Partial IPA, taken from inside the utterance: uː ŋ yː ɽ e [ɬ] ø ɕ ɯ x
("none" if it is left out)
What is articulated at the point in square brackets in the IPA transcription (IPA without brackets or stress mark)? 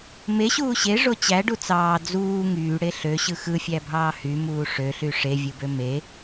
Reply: ɬ